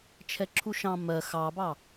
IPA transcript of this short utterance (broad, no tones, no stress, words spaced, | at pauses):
t͡ʃʰɛǁʰuʃɑ̃ mɜ xɑbɑ